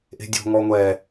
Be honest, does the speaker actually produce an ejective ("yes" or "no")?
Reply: no